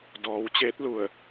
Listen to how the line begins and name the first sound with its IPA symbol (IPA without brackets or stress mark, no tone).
d